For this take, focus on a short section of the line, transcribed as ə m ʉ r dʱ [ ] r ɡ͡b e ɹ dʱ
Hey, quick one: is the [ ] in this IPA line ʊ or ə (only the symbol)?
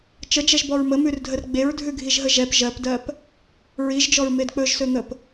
ə